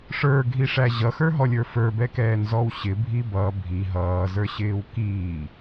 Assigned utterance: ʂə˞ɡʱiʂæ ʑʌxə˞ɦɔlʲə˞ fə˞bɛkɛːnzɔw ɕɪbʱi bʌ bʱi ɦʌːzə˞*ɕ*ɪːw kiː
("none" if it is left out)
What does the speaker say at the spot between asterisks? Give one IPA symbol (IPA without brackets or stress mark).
ɕ